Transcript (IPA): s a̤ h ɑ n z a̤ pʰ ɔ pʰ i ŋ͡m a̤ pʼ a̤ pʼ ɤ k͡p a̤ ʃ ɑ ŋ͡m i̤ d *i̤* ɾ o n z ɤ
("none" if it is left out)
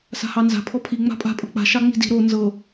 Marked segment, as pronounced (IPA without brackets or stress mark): i̤